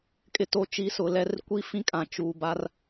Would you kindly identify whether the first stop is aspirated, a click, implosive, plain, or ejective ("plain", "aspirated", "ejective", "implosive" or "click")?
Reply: ejective